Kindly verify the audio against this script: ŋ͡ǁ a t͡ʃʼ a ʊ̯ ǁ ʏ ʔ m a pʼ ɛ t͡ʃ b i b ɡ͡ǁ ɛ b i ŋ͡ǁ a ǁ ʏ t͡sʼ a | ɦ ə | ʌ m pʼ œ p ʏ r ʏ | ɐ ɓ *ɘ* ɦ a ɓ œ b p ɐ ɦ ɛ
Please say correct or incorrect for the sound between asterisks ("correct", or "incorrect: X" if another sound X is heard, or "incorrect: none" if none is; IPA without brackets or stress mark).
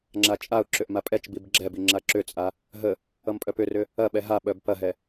incorrect: ɛ